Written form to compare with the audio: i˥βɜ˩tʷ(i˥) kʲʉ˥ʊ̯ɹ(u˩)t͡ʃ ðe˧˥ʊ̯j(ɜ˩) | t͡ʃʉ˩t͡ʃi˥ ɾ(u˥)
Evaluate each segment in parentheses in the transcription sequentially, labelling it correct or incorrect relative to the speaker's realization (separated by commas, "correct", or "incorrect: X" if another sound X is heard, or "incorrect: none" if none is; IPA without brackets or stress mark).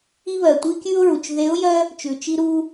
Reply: correct, correct, incorrect: ɜ˥, correct